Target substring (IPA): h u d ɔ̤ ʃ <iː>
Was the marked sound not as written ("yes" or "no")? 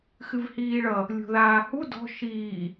no